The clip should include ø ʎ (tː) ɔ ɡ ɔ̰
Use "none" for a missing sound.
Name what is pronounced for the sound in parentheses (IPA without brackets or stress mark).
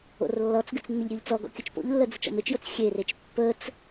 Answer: t͡s